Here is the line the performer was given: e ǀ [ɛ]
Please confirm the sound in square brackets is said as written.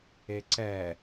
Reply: yes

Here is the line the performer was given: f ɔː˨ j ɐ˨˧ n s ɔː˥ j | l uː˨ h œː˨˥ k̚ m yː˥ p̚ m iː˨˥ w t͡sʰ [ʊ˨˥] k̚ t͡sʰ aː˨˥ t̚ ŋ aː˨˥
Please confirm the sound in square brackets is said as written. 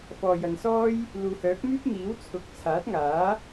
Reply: no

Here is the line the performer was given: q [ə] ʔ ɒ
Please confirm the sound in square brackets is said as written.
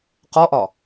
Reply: no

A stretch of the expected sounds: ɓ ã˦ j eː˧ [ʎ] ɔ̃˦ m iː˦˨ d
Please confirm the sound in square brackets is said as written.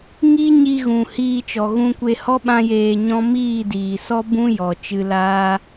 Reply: no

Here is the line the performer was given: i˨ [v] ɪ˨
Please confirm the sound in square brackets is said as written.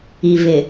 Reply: yes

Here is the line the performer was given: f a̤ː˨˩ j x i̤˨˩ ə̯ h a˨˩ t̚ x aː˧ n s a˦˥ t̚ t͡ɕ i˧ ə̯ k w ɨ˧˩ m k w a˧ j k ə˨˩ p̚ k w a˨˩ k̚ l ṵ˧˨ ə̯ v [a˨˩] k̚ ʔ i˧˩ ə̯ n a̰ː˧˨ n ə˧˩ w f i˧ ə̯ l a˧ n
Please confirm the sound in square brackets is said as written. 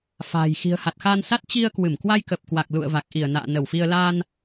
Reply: yes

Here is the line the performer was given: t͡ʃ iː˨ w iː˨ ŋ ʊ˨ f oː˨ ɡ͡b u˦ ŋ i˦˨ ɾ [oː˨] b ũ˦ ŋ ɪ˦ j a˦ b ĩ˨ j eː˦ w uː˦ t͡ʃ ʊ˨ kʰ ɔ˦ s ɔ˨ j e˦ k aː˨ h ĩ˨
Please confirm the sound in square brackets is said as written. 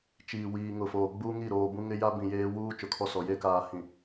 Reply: yes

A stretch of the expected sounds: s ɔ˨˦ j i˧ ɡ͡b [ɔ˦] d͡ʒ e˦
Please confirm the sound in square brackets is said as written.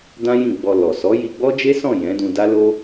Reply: yes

